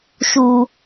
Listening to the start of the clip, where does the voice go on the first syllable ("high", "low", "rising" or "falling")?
low